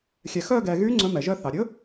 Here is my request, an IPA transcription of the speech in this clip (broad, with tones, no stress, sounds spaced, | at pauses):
xʲ ɛ˩ x œ˦˨ ɡ ɛ˩ ɣ y˨˥ ŋ͡ǀ ɵ˨˥ m ɛ˩ ʒ œ˦˨ θ ɑ˩ ɾʲ ɵ˨˥